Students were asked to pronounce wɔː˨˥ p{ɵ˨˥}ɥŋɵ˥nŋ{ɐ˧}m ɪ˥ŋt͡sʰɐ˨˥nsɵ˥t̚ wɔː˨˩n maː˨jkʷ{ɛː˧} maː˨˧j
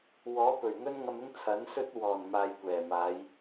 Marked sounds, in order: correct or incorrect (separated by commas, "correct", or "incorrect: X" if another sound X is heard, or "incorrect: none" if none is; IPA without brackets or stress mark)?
incorrect: ɵ˨˩, correct, incorrect: ɛː˨˩